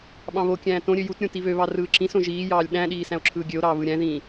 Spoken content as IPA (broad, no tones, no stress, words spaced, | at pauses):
ɓɑ̃βokʲæ̃ː tõɾʲø jutɾʲõ tiβøβɑ rɯːǁĩsõ ʒiːjɑːlʲ ɗæ̃ɗiː sæ̃o̯ǁʰɯːɡʲøo̯ɾɑː βɯɾʲæ̃ðĩː